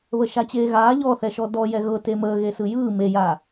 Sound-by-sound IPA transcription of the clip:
β ə ʃ a t͡ɕ eː ɣ aː ʎ ɔ θ ɛ ʃ ɔ d ɔ j ɛ ɣ ɤ t e m əː ɣ e s ɯ j ɯː m e j a

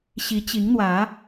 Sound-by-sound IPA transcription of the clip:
ɕ i˨˦ t͡ɕ i˨˦ ŋ n̪ w ä˨˦

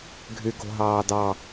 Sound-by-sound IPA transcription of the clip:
ɡʱ y ɡ o̤ ɦ ɑː d ɑ

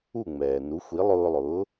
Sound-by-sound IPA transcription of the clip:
u˥˩ ŋ͡m ɛː˩ n u˩˥ xʷ i˩˥ lˠ ʊː˧ lˠ ʊː˩˥

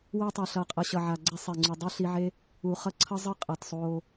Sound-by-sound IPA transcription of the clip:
w ɛ˧ tˤ a˨ ɬ ʌ˨ qʼ ʌ˨ ɕ ʌ˨ ʕ a˨ ɡ͡ǀ ɛ˧ sˤ e˨ ŋ͡ǀ u˨ dˤ i˦ ɬ i˧ ʕ e˦ | u˨ χ ʌ˧ ǀʰ ʌ˦ zˤ ɯ˦ qʼ ʌ˨ t sˤ o˧

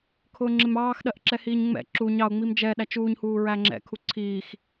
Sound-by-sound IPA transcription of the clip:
kʰ ʊː ŋ͡ǁ ɪ m ɑː x ɗ ɜ ʔ ǁ ɛ h iː ɲ ŋ͡m ɛ̰ ǁ u ɲ ɑ ʊ̯ ŋ͡m i m d͡ʒ ɛ ɗ æ t͡ʃ uː ɲ h uː ɹ æ ŋ͡ǁ ɛ̰ kʰ u ǀʰ iː x

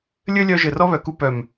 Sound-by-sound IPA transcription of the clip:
lʲ ɘ˦ lʲ œ˧ ʒ ɘ˨ r ɔ˦ β œ˨ k u˧ p œ˨ m

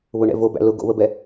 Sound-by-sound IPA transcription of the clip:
β ʊ ɳ ɛ̰ v o b æ̰ l ʊ ɡ o̰ β ə b ɛ

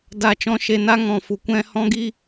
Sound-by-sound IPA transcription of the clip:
d a˨ t͡ʃ ɔ̃˧ ʃ e˨ n a˦ ŋ ɔ̃˨ f u˨ kʷ ɛ̃˧ h ɔ̃˦ ɡ i˦

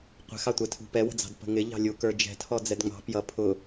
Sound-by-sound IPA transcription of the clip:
qʷ ɛ̤ x ɑ tʷ ɛ tʰ ṳ p ɛ w ə̤ d͡z ɑ̤ d p ə̤ ŋ ɪ ʎ ɑ̤ lʲ u k ə˞ d͡ʒ ɛ̤ tʰ ɔ d͡z ɛ d ŋ͡m ɑ̤ p j ʌ pʰ ʊ

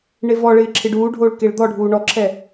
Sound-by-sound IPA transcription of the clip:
ɳ e v ɔ ɭ ɪː ǁʰ ɪ ɖ uː ɖʱ oː ɭ k e ɭ d̪ ɔ ɖʱ uː ɳ ɔ ǁʰ ɛ

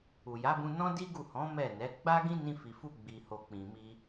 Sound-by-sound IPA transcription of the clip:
u˨ j a˨˦ b ũ˧ n ɔ̃˦ d i˦ ɡ u˦˨ h ɔ̃˨˦ m ɛ˦˨ n ɛ˨˦ ɡ͡b a˦ ɡ ĩ˦ n ĩ˧ f i˨ f u˧ ɡ͡b i˨ h o˨ k͡p ĩ˨ m i˧

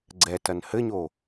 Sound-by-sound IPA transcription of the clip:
ɡ͡ǀ ɛ t ɐ n h ɘ ɲ o

